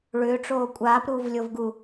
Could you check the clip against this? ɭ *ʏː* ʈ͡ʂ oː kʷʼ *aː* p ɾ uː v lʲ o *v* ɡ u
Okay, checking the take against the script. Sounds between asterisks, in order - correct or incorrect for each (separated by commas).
correct, correct, correct